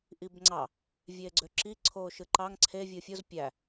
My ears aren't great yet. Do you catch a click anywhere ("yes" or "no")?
yes